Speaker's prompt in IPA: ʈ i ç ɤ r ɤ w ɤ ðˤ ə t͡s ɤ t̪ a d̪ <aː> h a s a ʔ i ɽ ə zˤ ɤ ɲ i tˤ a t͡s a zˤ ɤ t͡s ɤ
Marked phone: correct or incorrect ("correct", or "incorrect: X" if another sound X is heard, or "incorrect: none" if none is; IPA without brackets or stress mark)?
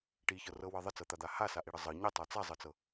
incorrect: a